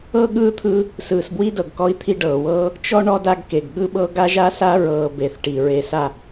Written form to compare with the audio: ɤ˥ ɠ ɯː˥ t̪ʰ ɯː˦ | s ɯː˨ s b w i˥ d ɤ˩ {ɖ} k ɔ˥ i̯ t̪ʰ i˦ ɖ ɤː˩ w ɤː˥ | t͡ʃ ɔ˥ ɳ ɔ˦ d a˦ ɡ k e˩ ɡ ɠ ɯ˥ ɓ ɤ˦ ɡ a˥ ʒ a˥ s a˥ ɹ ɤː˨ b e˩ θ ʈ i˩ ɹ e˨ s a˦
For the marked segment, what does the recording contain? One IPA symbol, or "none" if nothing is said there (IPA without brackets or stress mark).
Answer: ɡ